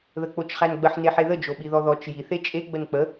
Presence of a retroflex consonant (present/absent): absent